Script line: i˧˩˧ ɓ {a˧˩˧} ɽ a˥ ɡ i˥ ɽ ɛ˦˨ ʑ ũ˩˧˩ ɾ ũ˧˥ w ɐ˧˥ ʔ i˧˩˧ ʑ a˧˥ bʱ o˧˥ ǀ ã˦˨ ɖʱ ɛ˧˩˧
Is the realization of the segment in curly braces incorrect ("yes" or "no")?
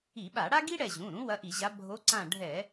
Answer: no